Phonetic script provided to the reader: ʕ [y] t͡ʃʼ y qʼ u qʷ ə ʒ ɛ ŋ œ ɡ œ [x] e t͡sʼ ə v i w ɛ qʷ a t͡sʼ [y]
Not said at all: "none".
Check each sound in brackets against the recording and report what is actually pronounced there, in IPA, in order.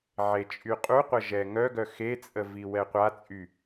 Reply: e, x, y

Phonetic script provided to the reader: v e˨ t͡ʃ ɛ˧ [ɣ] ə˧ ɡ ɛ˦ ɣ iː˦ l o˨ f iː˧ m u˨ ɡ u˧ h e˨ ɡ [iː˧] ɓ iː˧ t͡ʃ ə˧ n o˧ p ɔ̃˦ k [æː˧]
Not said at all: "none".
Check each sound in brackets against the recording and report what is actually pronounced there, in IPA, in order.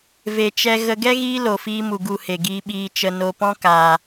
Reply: ɣ, iː˧, aː˧

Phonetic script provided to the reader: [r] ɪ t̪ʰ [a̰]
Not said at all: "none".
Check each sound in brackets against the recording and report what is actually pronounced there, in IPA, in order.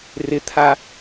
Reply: r, a

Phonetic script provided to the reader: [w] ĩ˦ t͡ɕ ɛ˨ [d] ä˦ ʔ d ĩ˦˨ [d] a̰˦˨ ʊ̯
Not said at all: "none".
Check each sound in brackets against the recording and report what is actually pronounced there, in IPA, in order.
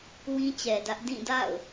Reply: w, d, d

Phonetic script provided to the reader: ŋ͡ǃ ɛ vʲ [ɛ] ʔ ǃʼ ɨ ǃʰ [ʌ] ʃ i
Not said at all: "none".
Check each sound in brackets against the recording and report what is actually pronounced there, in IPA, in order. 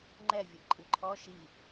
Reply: ɨ, ɔ

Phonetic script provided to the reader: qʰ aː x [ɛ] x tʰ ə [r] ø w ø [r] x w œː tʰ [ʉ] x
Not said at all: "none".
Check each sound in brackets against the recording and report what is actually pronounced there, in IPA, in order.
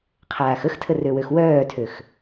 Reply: ə, r, none, ø

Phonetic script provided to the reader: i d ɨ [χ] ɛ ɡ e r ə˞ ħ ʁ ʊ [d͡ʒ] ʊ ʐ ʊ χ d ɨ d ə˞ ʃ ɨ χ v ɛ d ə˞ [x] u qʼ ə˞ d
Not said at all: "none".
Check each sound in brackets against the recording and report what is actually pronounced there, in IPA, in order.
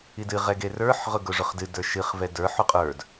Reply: ʁ, ɡ, ħ

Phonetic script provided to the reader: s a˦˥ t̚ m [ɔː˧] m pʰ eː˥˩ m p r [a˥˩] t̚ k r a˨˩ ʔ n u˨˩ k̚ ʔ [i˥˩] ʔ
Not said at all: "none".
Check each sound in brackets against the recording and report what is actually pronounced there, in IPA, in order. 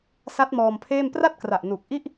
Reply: ɔː˧, a˥˩, i˥˩

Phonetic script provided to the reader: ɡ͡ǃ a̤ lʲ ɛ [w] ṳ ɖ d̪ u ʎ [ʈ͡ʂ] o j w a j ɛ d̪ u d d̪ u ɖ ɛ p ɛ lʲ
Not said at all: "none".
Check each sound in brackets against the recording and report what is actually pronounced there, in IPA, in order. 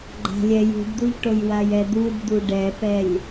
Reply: j, ʈ

